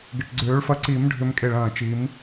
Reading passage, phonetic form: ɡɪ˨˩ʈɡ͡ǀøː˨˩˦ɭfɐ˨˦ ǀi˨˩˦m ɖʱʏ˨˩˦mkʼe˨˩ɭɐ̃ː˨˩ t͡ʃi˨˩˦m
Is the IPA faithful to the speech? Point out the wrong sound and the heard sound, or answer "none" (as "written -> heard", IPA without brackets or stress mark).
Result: none